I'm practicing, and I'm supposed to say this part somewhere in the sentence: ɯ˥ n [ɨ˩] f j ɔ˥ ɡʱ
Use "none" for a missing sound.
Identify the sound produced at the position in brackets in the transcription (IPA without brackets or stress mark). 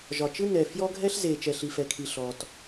ɛ˩